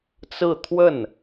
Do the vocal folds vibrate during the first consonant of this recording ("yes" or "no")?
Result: no